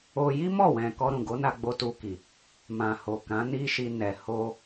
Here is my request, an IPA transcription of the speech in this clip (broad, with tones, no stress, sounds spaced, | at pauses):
o˧ j i˦ m ɔ˦˨ w ɛ̃˨ k ɔ˧ ɾ ũ˨ ɡ o˨˦ n a˧ ɡ͡b o˧ t u˧ k i˨ | m ã˨ h o˨ k ã˨˦ n i˦ ʃ i˧ n ɛ˨ h o˧